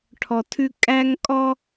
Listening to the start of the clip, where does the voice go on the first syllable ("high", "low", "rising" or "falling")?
low